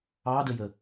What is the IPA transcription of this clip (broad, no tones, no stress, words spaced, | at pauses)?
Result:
ɑdəjə